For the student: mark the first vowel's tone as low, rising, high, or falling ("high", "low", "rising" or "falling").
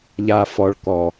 low